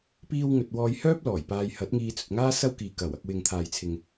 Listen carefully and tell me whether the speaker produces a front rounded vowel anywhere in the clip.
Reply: yes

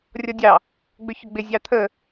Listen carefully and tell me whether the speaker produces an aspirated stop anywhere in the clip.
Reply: yes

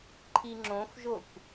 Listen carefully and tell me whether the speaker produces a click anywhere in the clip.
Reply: yes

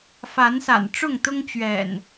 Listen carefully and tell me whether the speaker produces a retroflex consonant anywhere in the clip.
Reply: yes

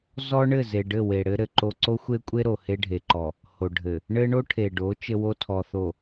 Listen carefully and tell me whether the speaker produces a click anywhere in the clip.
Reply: yes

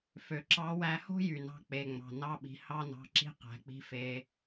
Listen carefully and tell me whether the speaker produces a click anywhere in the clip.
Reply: yes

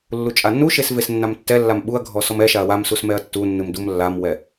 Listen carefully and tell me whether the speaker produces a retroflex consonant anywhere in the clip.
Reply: no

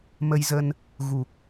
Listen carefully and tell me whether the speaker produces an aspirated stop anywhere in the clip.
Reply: no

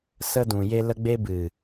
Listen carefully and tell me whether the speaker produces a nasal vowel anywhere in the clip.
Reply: yes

